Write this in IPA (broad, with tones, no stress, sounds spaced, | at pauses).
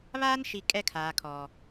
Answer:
β aː˦ n ʃ i˨ kʼ ɛ˦ kʰ aː˨ kʰ ɔ˨